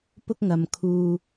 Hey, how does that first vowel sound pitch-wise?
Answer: high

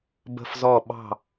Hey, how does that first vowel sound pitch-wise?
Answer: falling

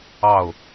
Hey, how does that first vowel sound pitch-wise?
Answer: falling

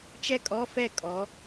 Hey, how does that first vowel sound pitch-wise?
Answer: high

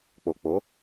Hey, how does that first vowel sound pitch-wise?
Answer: low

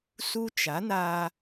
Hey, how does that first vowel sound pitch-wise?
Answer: high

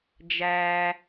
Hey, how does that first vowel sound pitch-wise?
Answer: low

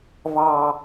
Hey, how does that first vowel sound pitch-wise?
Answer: low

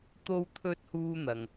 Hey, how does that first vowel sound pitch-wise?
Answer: high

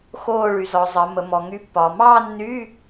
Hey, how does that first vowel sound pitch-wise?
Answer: falling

